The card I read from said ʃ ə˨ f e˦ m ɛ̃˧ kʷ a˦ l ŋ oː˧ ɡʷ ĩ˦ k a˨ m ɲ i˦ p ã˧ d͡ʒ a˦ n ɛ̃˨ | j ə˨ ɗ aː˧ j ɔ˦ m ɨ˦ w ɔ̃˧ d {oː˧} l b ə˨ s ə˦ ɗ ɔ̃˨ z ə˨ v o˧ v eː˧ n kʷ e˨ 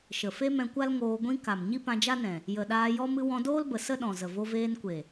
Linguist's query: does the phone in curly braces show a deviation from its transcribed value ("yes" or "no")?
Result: yes